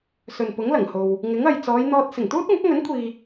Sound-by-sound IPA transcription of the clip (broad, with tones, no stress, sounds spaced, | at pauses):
s ɵ˨ n p ʊ˨˥ ŋ l ɐ˨˩ ŋ h o˨ w | ŋ ɪ˨˥ ŋ ɐ˨ j t͡s ɔː˨˧ j n̪ ɔː˧ t̚ s ɪ˨˩ ŋ t̪ uː˥ t̚ ŋ ʊ˨˥ k̚ ŋ ɵ˨˥ n kʷʰ iː˨